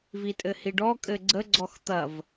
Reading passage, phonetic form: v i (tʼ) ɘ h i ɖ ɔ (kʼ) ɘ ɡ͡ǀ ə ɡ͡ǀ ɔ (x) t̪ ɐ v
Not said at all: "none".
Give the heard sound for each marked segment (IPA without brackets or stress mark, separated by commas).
tʼ, kʼ, x